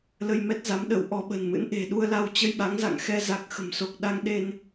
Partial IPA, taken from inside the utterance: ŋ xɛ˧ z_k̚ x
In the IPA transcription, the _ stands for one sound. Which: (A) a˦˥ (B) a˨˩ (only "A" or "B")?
B